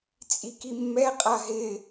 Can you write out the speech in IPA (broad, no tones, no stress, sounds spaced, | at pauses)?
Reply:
t͡sʼ i k i mː ɛ qʼ a ɦ ɪ